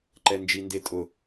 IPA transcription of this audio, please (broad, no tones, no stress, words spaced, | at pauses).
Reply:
ǃɛnd͡ʒindetʼʊ